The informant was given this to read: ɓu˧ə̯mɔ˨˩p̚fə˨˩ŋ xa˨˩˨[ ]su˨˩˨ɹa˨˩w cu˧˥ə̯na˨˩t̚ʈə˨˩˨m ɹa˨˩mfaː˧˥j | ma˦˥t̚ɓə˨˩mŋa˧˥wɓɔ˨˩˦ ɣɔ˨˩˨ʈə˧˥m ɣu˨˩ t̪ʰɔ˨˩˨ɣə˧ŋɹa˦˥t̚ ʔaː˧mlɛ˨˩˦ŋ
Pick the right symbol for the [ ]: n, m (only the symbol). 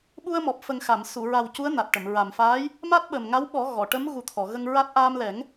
m